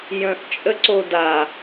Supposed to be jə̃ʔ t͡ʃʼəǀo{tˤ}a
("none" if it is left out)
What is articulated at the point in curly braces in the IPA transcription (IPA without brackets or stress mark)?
d